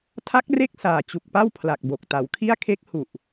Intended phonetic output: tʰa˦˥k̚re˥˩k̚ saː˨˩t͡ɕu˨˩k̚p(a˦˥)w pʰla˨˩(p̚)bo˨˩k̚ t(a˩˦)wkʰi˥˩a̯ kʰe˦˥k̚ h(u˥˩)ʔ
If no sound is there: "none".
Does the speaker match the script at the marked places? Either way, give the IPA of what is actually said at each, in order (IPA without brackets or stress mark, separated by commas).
a˥˩, k̚, a˩˦, u˨˩